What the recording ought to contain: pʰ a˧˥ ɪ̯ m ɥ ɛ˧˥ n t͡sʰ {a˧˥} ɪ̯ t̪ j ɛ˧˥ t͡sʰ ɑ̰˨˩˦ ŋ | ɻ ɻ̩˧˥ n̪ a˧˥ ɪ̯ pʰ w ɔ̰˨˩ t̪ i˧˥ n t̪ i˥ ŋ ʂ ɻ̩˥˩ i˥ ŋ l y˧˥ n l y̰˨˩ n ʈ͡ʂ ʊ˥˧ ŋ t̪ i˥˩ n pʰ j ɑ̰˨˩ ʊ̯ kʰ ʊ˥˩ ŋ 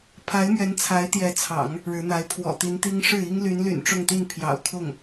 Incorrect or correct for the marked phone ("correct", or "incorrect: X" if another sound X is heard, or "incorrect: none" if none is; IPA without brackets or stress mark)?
correct